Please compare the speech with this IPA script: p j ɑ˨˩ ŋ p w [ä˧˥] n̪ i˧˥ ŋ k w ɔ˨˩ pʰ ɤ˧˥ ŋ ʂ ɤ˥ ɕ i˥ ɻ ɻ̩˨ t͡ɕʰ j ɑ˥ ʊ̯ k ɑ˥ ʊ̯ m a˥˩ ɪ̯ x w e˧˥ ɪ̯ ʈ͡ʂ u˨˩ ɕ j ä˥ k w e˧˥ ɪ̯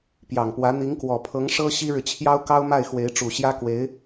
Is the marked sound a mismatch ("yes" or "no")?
no